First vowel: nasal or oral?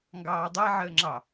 oral